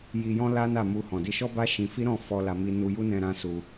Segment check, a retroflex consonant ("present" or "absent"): absent